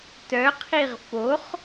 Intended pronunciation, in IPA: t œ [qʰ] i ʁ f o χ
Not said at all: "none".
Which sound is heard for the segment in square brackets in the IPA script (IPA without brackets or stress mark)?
qʰ